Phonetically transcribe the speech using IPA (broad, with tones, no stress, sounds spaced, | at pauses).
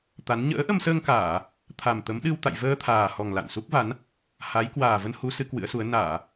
t̪ a˨˦ n ɲ ə̰ː˧˥ ʔ ə˧ m s əː˧ ŋ k aː˧˩˨ | t̪ʰ a˨˩ m t̪ ə˨˦ m ɗ ɨ˧ w t̪ a̰˧˨ j v əː˧ t̪ʰ aː˨˩ h ɔ˨˩ ŋ l a̰˧˨ n s u˦˥ k̚ v a˨˦ n | h a˨˦ j k w aː˨˩ v ə˧ n h u˨˦ s ɨ˨˦ k w ɨ̰˧˥ ə̯ s u˨˦ ə̯ n aː˧˩˨